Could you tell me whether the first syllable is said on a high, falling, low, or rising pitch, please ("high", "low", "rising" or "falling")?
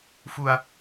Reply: low